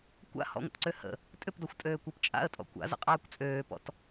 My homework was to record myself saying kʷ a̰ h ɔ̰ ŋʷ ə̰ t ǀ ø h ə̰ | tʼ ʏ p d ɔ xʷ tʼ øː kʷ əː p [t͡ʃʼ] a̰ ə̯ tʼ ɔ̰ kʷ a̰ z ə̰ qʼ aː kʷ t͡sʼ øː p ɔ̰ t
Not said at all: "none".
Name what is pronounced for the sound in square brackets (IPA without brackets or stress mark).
t͡ʃʼ